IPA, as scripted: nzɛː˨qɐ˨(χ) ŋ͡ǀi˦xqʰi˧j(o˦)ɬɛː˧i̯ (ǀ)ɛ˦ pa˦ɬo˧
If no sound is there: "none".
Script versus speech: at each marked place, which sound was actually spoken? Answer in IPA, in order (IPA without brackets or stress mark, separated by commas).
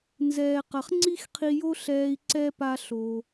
χ, o˦, ǀ